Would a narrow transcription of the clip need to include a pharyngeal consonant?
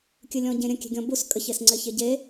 no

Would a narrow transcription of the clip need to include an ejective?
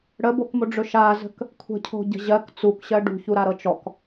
no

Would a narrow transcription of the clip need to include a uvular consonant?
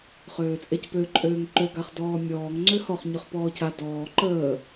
yes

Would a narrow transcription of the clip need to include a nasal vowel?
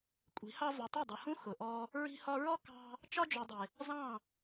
yes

